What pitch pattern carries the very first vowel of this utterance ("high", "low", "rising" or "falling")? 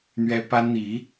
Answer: high